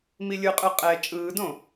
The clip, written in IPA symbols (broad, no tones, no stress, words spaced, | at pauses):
milʲɯqʼɯ qʼɛ t͡ʃʼɯːdõ